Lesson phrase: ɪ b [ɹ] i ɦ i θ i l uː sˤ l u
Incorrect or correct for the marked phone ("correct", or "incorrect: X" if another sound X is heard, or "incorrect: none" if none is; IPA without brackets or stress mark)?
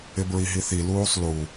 correct